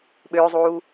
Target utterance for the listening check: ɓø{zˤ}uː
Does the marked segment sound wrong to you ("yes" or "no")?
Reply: no